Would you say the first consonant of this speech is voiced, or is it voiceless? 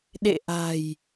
voiced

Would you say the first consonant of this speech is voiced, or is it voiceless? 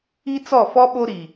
voiceless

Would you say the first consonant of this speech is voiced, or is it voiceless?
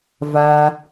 voiced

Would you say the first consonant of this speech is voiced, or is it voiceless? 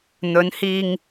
voiced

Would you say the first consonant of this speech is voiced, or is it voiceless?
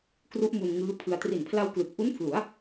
voiceless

